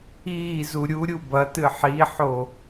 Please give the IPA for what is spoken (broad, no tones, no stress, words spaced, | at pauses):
iːzu ɾʲuɾʲu bɐtɨ ħiħo